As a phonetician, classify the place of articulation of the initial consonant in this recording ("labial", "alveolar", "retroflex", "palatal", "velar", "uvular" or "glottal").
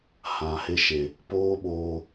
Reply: glottal